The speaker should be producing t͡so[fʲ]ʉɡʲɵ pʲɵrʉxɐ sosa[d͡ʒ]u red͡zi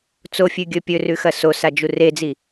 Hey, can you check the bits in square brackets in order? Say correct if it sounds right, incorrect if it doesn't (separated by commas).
correct, correct